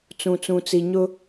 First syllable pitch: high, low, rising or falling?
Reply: low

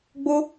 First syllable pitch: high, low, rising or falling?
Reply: high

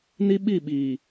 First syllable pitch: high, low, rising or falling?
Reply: high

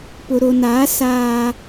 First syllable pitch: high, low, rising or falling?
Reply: low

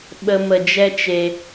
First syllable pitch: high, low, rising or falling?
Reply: high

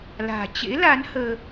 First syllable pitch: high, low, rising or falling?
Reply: low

